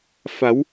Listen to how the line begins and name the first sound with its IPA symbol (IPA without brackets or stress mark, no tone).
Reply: f